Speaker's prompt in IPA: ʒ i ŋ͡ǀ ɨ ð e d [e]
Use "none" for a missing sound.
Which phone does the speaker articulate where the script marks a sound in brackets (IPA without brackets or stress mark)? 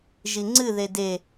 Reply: e